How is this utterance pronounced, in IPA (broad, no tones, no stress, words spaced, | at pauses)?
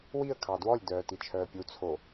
wiə̯ kʰɑdwɔlʲ dœːtit͡ʃʰœːpʲu t͡sʰo